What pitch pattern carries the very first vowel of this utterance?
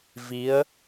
rising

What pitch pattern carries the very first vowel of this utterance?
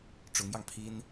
rising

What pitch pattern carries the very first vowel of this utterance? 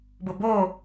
low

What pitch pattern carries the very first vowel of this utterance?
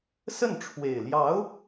falling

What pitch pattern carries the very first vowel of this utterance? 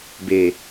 low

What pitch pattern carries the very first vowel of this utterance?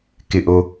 low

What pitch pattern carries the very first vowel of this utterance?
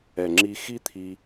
low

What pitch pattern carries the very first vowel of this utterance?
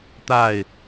falling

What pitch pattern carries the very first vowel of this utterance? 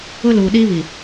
high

